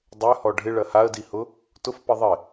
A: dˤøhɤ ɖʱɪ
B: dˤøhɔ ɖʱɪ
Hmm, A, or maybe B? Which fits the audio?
B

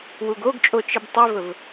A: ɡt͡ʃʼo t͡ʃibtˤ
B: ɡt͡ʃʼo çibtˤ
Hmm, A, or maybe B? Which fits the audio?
A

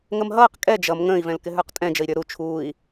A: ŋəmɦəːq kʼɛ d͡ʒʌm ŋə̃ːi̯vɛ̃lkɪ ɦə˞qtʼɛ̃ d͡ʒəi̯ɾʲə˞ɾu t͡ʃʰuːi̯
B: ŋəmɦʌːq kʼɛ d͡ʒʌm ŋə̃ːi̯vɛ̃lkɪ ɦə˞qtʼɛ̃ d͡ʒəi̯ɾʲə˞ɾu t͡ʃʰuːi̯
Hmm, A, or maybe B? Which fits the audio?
B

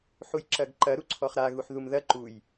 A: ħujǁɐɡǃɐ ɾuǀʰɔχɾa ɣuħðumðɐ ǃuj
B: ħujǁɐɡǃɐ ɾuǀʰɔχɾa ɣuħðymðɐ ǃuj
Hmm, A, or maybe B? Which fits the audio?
A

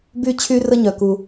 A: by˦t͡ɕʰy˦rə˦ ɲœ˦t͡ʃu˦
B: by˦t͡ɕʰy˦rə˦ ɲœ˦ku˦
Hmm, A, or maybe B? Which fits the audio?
B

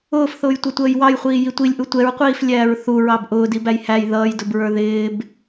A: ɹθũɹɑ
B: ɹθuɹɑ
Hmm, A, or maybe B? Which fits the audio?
B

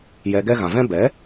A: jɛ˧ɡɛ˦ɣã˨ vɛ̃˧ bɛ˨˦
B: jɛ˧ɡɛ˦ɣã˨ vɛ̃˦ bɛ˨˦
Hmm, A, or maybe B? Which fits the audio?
B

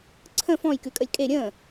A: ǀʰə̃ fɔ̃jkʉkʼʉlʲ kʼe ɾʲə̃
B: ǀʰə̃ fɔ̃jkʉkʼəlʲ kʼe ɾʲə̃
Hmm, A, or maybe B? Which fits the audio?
B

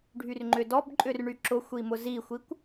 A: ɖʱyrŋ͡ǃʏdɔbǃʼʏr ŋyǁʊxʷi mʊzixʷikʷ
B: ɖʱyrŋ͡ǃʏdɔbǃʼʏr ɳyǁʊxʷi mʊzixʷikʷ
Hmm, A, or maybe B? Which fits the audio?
B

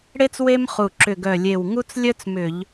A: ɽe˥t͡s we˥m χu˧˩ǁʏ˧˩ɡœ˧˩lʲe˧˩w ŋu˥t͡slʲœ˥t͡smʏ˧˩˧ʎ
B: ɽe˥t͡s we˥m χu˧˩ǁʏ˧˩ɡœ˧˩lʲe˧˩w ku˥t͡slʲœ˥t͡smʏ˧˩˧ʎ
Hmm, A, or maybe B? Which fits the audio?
A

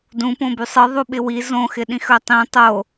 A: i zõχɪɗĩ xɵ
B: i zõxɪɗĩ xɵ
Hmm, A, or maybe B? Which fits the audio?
B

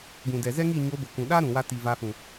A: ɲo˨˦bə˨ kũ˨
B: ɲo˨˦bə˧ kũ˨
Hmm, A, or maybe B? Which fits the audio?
A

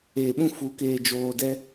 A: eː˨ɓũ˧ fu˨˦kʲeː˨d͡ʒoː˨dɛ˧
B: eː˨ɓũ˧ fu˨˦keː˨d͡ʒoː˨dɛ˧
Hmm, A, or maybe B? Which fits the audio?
B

